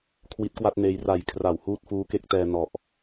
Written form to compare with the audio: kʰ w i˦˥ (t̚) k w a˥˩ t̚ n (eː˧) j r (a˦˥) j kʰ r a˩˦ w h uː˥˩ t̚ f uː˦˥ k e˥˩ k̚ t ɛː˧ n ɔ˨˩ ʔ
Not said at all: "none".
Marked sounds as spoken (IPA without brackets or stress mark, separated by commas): t̚, eː˧, a˨˩